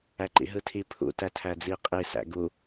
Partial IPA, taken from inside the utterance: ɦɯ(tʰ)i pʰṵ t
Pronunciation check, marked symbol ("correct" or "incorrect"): correct